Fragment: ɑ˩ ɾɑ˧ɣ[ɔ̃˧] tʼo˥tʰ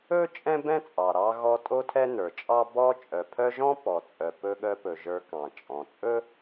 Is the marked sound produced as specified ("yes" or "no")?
no